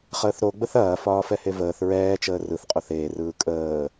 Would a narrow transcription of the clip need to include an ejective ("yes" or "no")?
yes